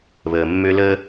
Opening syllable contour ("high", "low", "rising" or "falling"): low